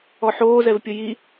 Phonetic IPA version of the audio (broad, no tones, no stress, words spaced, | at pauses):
ɔħoːzɛvpʲʊ ji